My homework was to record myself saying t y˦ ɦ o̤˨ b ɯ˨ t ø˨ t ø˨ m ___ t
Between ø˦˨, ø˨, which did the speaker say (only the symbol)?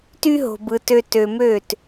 ø˦˨